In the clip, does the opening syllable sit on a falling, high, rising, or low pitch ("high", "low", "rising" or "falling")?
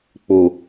low